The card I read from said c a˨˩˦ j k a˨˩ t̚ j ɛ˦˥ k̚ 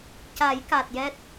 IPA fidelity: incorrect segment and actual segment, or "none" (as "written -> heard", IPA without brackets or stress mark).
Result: k̚ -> t̚